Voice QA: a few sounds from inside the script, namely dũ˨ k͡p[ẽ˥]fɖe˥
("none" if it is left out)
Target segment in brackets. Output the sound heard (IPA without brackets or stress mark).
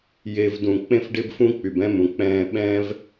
ẽ˥